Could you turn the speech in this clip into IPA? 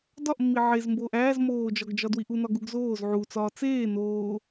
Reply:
d ɒ ʔ mː i ʕ e z m b oː ʔ æː z m oː d͡ʒ ɒ ɡ d͡ʒ ɒ d w i ʔ u n ɒ ɡ u ɡ z oː z ʕ u t͡s ɒː t͡s eː n oː

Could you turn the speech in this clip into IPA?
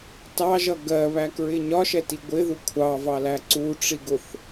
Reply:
t ɑ ʒ ʌ ɡ ɜ β æ k ɹ ɪ ɲ ɒ ʃ ɛ t i ɡʷ ɪ ð u kʷʰ ɑ v ɑ l æ ǀ u ʈ͡ʂ i ɡ ʊ θ

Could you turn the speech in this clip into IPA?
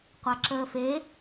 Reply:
qʷ a ǁ əː f e

